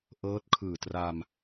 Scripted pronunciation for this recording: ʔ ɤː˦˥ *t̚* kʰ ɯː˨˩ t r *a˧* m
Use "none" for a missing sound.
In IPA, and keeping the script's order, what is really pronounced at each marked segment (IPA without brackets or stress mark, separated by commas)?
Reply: t̚, a˧